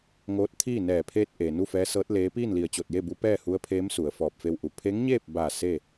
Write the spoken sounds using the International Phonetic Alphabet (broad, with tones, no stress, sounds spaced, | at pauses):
ŋ oː˧˥ t̚ t̪ʰ iː˥˨ n ɛː˧˩ pʰ eː˧ t̚ ʔ eː˩ n u˥˨ f ɛː˧˥ s ɤː˧˥ t̚ l eː˧˥ p iː˥˨ n l i˧˩ ə̯ t͡ɕ o˧˩ t̚ j e˥˨ b u˧˥ p ɛː˥˨ h u˧˥ ə̯ pʰ eː˧˥ m s u˩˧ ə̯ f ɔː˧˩ p̚ f e˧ w ʔ u˩ pʰ e˧˥ ŋ ɲ eː˥˨ p̚ b a˧˩ s e˥˨